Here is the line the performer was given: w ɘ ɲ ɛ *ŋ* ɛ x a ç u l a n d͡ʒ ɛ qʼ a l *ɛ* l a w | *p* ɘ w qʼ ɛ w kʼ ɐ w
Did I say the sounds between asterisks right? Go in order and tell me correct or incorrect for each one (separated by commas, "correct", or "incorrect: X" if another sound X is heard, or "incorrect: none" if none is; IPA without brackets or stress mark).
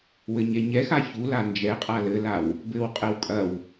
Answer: incorrect: ɲ, incorrect: ɘ, incorrect: b